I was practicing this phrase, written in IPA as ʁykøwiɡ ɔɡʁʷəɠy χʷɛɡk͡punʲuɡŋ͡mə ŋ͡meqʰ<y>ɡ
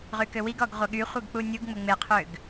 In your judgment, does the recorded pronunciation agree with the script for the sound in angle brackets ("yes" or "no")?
no